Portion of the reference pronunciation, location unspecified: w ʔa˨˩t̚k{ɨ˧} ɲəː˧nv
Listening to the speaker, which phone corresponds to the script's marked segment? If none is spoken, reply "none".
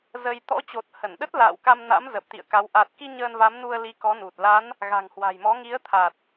i˧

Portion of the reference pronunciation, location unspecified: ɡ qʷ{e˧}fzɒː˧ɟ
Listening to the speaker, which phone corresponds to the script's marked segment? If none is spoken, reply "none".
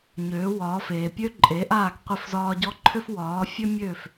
e˧˩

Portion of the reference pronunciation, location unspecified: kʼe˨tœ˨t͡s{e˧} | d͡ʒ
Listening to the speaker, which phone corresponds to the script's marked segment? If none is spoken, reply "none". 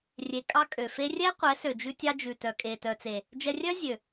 e˨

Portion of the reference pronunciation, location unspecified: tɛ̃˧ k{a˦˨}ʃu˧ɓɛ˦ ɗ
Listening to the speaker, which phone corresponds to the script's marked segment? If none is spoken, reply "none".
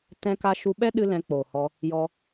a˧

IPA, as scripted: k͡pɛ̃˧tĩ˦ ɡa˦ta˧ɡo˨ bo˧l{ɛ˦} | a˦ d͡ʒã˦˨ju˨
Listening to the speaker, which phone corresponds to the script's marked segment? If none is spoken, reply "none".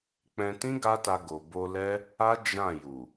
ɛ˦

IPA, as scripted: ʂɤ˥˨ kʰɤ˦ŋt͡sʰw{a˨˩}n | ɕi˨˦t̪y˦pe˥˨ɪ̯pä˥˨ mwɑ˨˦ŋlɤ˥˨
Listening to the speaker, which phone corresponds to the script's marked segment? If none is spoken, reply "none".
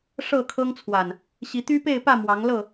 a˨˩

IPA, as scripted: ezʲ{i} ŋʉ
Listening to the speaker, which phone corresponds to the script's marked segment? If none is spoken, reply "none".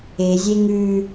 e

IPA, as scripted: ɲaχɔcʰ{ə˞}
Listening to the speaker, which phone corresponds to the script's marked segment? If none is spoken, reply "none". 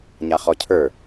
ə˞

